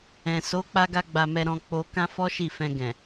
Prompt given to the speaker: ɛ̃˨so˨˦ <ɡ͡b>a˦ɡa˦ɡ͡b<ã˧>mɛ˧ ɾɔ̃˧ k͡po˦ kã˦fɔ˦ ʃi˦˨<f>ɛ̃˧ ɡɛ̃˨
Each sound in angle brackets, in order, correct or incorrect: incorrect, incorrect, correct

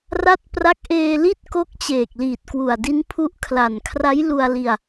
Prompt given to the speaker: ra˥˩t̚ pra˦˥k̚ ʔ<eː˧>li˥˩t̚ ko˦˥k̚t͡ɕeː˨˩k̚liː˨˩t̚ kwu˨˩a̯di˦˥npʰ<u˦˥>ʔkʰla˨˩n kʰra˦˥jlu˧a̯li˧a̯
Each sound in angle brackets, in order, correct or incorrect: correct, correct

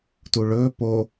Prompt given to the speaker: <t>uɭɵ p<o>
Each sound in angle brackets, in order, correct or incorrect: correct, correct

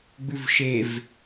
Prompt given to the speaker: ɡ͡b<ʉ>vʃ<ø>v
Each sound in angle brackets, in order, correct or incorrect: correct, incorrect

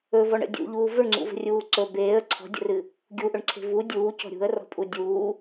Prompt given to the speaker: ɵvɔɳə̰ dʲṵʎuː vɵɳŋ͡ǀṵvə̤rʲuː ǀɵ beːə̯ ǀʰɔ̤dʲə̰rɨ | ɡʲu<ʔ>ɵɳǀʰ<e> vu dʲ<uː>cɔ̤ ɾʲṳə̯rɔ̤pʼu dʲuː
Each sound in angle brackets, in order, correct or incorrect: correct, incorrect, correct

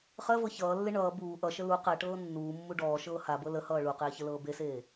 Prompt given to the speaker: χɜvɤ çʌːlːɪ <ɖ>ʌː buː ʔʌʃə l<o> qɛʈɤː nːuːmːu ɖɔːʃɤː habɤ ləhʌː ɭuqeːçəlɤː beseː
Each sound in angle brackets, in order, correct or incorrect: incorrect, incorrect

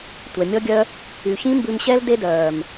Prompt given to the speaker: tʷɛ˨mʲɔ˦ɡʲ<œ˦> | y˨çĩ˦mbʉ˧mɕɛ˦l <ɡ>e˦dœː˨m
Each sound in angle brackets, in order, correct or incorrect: correct, incorrect

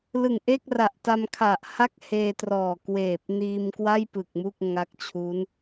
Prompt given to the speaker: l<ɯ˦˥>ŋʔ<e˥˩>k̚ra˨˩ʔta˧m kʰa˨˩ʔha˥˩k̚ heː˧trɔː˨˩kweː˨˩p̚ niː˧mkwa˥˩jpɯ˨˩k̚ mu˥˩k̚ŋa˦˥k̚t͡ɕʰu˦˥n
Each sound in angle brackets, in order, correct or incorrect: incorrect, correct

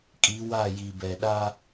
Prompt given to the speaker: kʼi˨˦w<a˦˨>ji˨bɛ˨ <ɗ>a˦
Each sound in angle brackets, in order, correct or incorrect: correct, correct

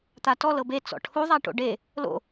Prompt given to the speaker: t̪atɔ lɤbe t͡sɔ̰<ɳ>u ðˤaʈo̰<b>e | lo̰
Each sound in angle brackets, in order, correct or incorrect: incorrect, incorrect

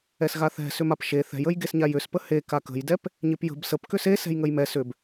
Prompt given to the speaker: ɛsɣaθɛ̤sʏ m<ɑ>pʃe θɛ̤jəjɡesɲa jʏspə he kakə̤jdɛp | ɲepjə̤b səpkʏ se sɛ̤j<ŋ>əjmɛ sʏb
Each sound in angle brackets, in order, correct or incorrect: incorrect, correct

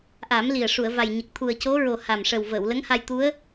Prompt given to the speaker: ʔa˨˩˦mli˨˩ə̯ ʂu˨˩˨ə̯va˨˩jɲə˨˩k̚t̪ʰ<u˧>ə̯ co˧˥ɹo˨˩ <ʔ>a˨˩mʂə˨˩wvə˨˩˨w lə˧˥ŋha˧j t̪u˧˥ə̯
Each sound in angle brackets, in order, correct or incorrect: incorrect, incorrect

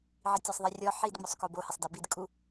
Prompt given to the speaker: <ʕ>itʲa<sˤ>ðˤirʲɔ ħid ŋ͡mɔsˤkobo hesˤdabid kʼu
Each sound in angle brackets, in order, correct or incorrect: correct, correct

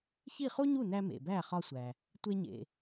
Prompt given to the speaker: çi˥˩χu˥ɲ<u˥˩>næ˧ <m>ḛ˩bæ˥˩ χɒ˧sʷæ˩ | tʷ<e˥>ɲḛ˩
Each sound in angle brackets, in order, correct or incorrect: correct, correct, incorrect

